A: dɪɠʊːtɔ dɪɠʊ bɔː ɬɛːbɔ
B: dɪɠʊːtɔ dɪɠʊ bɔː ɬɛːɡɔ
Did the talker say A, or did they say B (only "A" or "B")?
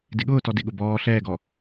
B